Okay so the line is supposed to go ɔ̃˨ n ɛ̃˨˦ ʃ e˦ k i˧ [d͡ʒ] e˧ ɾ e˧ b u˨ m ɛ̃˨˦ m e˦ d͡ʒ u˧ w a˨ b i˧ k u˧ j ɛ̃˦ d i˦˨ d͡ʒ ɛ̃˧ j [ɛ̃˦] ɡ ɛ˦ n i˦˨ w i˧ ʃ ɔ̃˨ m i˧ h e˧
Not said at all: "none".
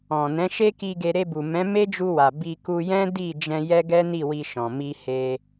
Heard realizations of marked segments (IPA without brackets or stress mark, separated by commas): ɡ, ɛ˦